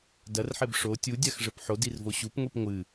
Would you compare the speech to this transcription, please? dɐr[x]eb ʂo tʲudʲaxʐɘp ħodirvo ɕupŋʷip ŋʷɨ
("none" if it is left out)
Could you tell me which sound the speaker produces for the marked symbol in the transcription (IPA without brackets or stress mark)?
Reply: ħ